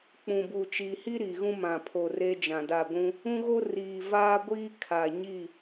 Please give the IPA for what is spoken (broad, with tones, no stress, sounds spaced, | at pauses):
k͡p ũ˨ b u˨ t͡ʃ iː˨ h i˦ ɾ i˨ ɣ ũ˦ m ã˨ pʰ o˨ r e˦ d͡ʒ ã˨ d a˦˨ ɡʷ ũ˦ | ũ˦ ɣ o˦ r iː˨ v aː˦ ɡʷ iː˦ kʰ a˨ ɲ i˦˨